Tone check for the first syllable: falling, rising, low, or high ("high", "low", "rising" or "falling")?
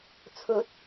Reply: rising